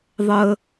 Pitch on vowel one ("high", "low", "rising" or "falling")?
low